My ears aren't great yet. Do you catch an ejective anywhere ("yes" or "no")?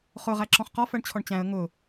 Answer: no